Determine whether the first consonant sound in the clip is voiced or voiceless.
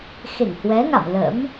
voiceless